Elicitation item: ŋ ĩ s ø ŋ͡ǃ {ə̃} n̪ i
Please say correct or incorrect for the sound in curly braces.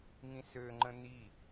correct